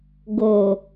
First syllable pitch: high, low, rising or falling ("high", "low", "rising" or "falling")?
low